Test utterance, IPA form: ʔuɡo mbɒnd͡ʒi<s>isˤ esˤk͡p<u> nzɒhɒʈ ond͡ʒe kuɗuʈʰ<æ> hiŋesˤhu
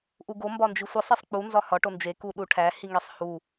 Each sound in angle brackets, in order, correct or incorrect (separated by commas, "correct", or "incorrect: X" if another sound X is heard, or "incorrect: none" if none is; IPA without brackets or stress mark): incorrect: sʷ, correct, correct